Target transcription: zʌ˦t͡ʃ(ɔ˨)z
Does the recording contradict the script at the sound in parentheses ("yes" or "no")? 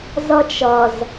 yes